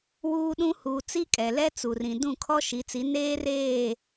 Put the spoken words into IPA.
w uː˦ ɗ ũ˦ h uː˨ t͡s i˦ kʼ ɛ˨ l ɛ˦ t͡s u˨ r ĩ˨ d ũ˦˨ kʰ ɔ˦ ʃ i˨˦ t͡s i˨˦ n eː˦ r eː˦˨

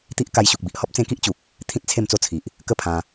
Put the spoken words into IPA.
t̪ i˦ ʔ k a˧ j ɕ u˨ k̚ b i˨ ʔ h ɔ˦ p̚ t͡s ẽ˧ k i˦ ʔ t͡ɕ u˨ k̚ | t̪ʰ ĩ˦ t̚ t͡sʰ e˥˧ m t͡s o˦ t͡sʰ i˨ ʔ | k ə˥˧ pʰ ã˧

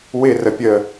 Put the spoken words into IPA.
w ɪ r ə pʲ ə

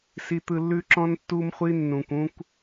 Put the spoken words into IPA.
s i˧ t̪ ɯ˧ lː ʉ˦ ǁ ɔ̃˦ n tː u˦ m χʷ i˦ nː ũ˨ kʷ ũ˦ kʷ

